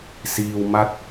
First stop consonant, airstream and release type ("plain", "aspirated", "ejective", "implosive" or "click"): plain